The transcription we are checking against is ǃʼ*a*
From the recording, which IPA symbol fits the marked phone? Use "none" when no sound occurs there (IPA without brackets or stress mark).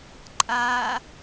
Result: a